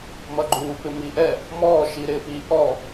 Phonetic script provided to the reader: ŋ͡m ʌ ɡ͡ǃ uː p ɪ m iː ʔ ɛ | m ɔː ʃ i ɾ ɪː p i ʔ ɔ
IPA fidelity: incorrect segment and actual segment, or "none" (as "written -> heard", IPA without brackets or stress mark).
ŋ͡m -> m